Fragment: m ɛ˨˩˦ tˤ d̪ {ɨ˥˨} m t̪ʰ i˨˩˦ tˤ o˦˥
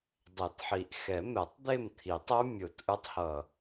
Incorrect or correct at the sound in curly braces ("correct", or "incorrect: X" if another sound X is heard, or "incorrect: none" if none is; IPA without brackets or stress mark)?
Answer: incorrect: e˥˨